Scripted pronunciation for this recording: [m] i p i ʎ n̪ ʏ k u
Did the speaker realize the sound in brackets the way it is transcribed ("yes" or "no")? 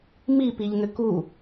yes